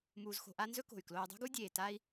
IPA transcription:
m uː˨ z x o̤˨ ʔ a˦ n z ɵ˦ k o̤˩ y̯ k l oː˨ y̯ dˤ ṳ˦ ɡ u˦ dʲ eː˩ t a˦ i̯

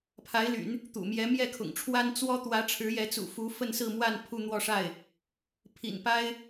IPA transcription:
pʰ a˧˥ ɪ̯ l y̰˨˩˦ n | t̪ ṵ˨˩ m j ɛ˧˥ m j ɛ˥˩ kʰ ʊ̰˨˩ ŋ ʈ͡ʂʰ w a˥ n t͡s w ɔ˥ t̪ w ä˧˥ ʈ͡ʂʰ ɻ̩˧˥ j ɛ˧˥ t͡s ṵ˨˩ f u˧˥ f ə˥˧ n s ɹ̩˥˧ m w a˥˧ n pʰ u˥˧ n̪ w ɔ˥˧ ʂ a˥˩ ɪ̯ | pʰ ḭ˨˩ n p a˥ ɪ̯

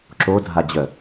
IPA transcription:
ǁ o dʱ a d͡ʑ œ

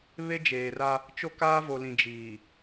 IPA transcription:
β e˦ d͡ʒ eː˨ r a˦ | t͡ʃ o˦ k aː˦ v o˨ l ĩ˨ d͡ʒ iː˨

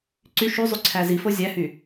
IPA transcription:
ǀ y ʃ y zˤ y ǀʰ æ z i f o zʲ æ h y

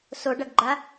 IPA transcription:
s o ɖ ɐ ɡ ɡ͡ǃ a

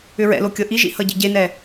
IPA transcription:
ʏ ɹ ɛ̰ l o kʲ ɤ ʔ i ʒ ḭ h ʌ ɟ ḭ ɟ e n ɛ

